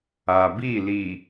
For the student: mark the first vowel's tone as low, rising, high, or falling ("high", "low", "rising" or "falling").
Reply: low